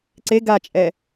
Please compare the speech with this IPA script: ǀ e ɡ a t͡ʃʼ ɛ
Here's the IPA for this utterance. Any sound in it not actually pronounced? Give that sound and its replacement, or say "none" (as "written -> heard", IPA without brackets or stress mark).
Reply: none